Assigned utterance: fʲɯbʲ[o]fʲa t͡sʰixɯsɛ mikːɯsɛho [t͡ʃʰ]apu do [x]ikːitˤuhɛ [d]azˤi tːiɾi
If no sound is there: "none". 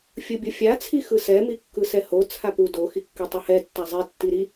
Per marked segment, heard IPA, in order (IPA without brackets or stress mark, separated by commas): o, t͡sʰ, x, tː